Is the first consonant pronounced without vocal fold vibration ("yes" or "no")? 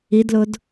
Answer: no